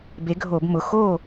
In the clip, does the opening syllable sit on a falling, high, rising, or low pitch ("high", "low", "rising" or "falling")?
rising